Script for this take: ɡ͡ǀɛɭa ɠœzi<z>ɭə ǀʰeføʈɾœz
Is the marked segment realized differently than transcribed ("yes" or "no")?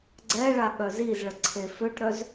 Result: no